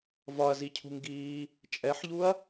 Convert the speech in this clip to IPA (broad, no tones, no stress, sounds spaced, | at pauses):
v ɒ ɐ̯ z i cʰ ṳ ŋ ɡ iː | t͡ʃʼ ɛ ħ ʎ u ɐ̯